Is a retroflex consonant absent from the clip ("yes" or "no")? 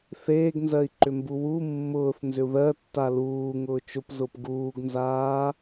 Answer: yes